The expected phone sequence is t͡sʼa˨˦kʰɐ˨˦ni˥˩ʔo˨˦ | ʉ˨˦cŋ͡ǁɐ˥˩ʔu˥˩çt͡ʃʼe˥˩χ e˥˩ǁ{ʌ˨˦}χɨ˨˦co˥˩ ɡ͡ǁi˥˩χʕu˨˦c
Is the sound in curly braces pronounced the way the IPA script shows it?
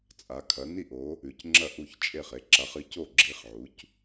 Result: no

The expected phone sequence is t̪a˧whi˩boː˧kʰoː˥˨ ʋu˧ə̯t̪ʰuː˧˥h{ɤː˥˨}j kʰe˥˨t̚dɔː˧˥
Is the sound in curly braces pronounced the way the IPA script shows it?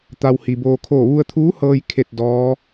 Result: no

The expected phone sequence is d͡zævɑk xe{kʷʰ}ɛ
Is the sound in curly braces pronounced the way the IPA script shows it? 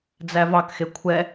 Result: yes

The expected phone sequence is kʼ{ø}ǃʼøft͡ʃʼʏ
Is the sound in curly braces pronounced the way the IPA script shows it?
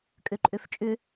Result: yes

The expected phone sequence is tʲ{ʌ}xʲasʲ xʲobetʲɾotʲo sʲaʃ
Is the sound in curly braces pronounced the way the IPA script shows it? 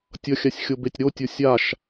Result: yes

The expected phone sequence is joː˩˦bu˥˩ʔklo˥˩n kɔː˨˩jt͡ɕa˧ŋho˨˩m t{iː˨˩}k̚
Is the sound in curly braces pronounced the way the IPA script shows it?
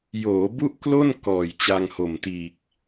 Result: yes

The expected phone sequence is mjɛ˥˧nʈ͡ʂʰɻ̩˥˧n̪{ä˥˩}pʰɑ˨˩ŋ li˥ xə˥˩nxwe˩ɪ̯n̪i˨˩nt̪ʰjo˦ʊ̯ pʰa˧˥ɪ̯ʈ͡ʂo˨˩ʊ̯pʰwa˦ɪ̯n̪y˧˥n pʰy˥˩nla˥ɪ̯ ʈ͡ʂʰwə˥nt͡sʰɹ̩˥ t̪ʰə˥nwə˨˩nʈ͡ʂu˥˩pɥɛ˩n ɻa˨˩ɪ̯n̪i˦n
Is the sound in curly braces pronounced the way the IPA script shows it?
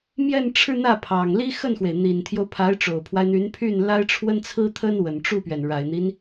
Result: yes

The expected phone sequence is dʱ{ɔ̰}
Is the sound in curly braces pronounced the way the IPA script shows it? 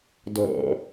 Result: yes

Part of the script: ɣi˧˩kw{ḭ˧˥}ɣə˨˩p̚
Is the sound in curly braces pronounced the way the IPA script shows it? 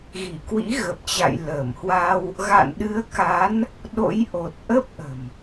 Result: yes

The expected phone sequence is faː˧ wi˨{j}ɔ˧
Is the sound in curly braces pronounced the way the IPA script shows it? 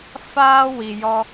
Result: yes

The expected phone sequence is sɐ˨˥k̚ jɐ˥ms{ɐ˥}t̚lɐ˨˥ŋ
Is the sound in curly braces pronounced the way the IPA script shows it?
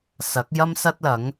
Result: yes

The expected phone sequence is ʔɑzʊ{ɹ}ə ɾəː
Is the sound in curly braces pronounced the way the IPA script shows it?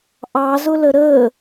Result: no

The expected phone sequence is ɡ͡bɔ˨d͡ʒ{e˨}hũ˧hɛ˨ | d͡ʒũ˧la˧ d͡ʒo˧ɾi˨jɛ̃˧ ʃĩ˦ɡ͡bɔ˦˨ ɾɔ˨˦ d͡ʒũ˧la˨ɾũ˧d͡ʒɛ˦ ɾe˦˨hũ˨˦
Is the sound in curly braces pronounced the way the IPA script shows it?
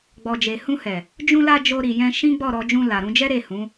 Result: yes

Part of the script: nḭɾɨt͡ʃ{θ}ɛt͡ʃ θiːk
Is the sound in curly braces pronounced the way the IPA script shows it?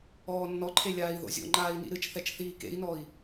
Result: yes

